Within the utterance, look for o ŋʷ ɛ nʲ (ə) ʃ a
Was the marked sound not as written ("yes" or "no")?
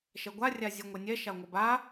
yes